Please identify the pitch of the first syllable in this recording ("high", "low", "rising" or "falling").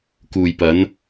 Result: low